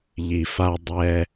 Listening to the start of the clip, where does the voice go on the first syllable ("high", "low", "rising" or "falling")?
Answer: low